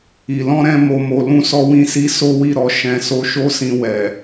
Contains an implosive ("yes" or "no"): no